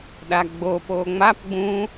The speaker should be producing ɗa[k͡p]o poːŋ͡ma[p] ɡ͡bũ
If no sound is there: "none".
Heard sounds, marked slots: ɡ͡b, p

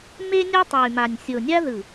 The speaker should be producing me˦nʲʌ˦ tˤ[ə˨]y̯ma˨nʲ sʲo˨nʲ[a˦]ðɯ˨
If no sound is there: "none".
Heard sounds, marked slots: ɯ˨, a˦

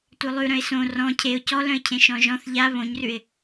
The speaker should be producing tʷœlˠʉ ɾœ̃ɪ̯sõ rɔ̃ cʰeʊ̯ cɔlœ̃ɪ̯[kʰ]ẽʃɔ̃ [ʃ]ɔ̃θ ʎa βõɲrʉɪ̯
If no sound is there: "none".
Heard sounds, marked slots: cʰ, ʒ

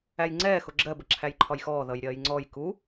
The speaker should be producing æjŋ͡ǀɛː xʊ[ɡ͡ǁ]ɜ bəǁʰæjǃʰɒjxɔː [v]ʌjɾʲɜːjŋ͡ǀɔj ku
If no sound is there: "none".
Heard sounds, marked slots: ɡ͡ǁ, ð

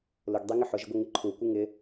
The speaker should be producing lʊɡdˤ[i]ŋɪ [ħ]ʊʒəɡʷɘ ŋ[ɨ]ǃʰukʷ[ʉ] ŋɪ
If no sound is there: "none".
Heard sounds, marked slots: i, ħ, ɨ, ɨ

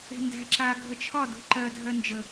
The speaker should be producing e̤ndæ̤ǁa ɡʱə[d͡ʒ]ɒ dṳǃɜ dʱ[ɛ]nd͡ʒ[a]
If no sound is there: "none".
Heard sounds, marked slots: t͡ʃʰ, ɜ, ə

